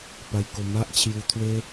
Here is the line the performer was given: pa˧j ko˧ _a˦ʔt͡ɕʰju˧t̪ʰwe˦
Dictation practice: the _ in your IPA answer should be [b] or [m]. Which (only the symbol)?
m